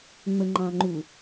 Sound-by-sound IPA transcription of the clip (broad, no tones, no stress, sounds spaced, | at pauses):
ŋ͡m ə ŋ͡ǃ ɑ̃ ŋ͡ǃ u